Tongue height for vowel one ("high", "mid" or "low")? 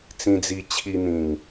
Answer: high